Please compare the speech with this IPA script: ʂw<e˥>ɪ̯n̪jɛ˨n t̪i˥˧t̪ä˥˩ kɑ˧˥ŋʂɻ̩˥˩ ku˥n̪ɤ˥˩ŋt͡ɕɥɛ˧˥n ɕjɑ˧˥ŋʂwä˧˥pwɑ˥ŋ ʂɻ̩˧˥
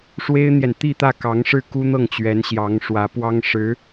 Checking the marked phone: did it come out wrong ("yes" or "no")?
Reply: no